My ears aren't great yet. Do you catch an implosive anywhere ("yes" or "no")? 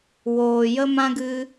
no